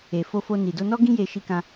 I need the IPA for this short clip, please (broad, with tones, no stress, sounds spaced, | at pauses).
e˨ f o˧ f o˧ n i˨ d o˧ n ɔ˦ ɡ ĩ˦ j e˧ ʃ i˧ k ã˧